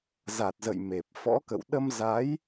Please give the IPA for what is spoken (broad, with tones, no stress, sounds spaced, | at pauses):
z a˨˩ t̚ z ə̰˧˨ j m e˨˩ p̚ f ɔ̰˧˥ k ə̰˧˨ w ɗ ə˧ m z a˨˦ j